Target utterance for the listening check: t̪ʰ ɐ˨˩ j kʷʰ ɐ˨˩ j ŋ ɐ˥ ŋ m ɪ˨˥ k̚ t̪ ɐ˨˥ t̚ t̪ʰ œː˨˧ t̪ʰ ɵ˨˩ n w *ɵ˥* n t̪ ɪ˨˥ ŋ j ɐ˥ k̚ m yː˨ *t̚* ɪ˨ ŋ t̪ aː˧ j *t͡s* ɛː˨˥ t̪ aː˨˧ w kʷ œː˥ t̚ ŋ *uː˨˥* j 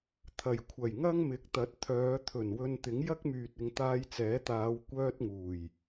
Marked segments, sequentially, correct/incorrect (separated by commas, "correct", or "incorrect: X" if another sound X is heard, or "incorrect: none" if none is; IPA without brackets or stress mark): incorrect: ɵ˧, correct, correct, incorrect: uː˨˩